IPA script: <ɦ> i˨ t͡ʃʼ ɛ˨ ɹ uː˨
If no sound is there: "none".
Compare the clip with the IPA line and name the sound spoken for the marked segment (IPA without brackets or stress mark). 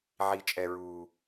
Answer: ʕ